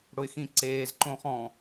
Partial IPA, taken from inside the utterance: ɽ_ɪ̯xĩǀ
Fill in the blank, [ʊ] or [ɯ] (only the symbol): ʊ